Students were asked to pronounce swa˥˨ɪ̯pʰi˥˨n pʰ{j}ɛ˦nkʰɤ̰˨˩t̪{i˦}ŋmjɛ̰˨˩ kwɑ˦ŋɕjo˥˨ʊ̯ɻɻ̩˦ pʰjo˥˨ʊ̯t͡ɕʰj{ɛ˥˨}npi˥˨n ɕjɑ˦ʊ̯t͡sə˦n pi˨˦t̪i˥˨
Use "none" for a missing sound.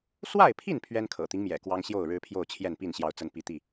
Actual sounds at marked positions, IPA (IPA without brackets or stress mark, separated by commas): ɥ, i˦, ɛ˥˨